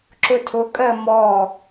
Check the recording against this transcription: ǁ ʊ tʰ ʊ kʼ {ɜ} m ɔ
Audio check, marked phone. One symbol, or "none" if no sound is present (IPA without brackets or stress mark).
ɜ